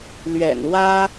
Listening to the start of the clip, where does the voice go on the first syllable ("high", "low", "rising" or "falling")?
low